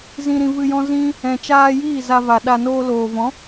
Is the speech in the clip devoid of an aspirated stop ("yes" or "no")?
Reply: yes